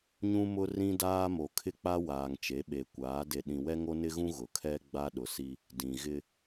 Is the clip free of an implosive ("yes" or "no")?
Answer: no